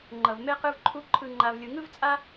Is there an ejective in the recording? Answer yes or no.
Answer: yes